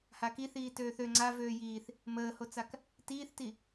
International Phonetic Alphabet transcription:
h a k i θ iː t øː θ ø ŋ͡ǀ a v øː j iː θ | m əː h o t͡s a k | t iː θ t i

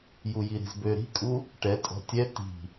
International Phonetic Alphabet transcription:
j u j i ɾ i̤ z b ø ɾ i̤ kʼ u | ʈ ɛ tʼ ɔ̤ tʲ ɛ t i̤

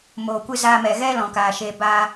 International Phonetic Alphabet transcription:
m oː˨ kʷ ɨ˧ z aː˧ m ɛ˨ ɣ ɛ˦ l ɔ̃˨ k aː˨ ʃ eː˧ b aː˧

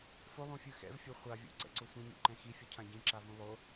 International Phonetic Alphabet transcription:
f o lˠ ũ fʲ ɯ x ɛ̰ v fʲ o χʷ a vʲ ṵ ǀ ɛ̰ ǀ o sʷ ĩ ɲ ṵ ǃ ɛ̃ x i fʲ u cʰ ã ɟ ĩ ǁ a v ũ lˠ o

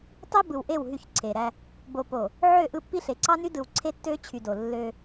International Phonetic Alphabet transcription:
tˤ i˦ b ɯ˨ w ʔ e˦˨ w ɦ y˦˨ ç ǀʰ e˨ ɾ æ˦ | b o˨ p o˨ | ʕ ø˦˨ ʔ ɯ˦˨ pː i˦ ɬ e˨ ǀ ɑ˦ n y˦ d ɯ˨ w ǀʰ e˦ tː ø˦ t͡ɕʰ y˨ d o˨ lː ø˦

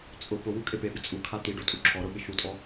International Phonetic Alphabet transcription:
t͡sʼ ʊ p ʊ w u kʼ e p e b ɪ t͡sʼ u kʰ a t̪ i ɖ o tʼ u ǁʰ ɔ ɾ ʊ ɓ ɪ ʃ u tʼ ɔ

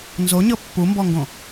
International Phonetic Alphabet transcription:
n z o ɲ ɤ pː u m b ɔ ŋ ɡ õ

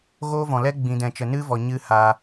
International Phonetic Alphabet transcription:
ɣ oː˦ v ɔ̃˨ l ɛ˦ ɡ͡b ĩ˨ d ɛ̃˨ t͡ʃ ə˨ n ɨ˦ v ɔ˨ ɲ ɨ˧ h aː˨

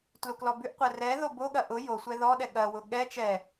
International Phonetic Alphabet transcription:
t l u k l ɔ b ʉ ʔ qʷ ɛ r ɛ ð o b o ɠ ɐ ʔ ʊ j o sʷ ɛ ð ɔ ɗ ɛ ɠ ɐ w ʊ ɠ ɛ t͡ʃ ɛ

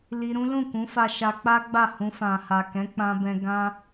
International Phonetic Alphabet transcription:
l i˧ ɾ ũ˦ l ũ˦˨ k ũ˨˦ f a˧ ʃ a˧ k͡p a˦ ɡ͡b a˦˨ h ũ˧ f ã˨ h a˨ k ɛ̃˨˦ k͡p ã˧ b ɛ̃˧ ɡ ã˦

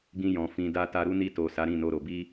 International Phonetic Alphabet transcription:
ɡ ĩ˧ j ɔ̃˨ f ĩ˨ d a˧ t a˧ ɾ u˦ n i˧ t o˨ s a˨˦ ɾ ĩ˦˨ n o˧ ɾ o˨ b i˧

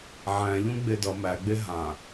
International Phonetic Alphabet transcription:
ʕ æ̃ ʎ ũ ɡ͡b e d ʌ m æ ɡ͡b e ɦ ã

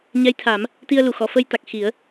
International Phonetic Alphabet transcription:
ɲ ɛ˧˥ j t̪ʰ a˨˩˦ m | t̪ i˧ ə̯ l u˨˩˨ x ɔ˨˩˨ f ə˧ j t̪ a˨˩ k̚ x i˨˩˦ ə̯

